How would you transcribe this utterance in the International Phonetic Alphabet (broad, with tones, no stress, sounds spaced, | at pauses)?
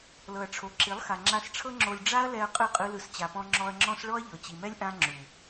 l ɤ˨ ɐ̯ ʈ͡ʂʰ o˨ ǁ i˨˦ lˠ x a˨ ŋ͡ǁ a˧ s ʈ͡ʂʰ ɤ˦ ŋ͡ǁ o˧ lʲ ɖ͡ʐ a˦ ɐ̯ l ɛ˧ ɐ̯ qʼ ɯ˦˨ qʼ ɯ˦ l ɯ˧ s t͡ɕ a˨ p ɔ̃˧ ŋ͡ǁ ɔ˧ ɐ̯ ŋ͡ǁ ɔ̃˦ s ɭ ɔ˦ ɐ̯ ʎ ɤ˨ t͡ɕ i˨ m ɛ˦ lʲ ʔ ã˦ ŋ͡ǁ u˨